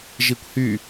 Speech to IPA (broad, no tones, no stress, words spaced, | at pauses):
ʒikʷhy